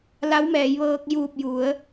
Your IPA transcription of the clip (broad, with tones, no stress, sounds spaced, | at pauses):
l a˧˥ w m ɛː˩˧ j ʋ ɤː˧ k̚ j uː˧˩ p̚ j u˩˧ ə̯